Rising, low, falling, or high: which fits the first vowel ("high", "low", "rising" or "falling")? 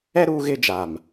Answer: high